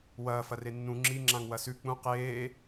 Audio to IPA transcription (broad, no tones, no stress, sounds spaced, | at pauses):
w ɐː f ɐ r e nː ũ ŋ͡ǁ i ŋ͡ǁ ã ŋ w ɐ s ʉ k͡p ũ q eː